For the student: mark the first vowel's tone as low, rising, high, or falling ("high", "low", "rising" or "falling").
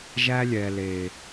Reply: high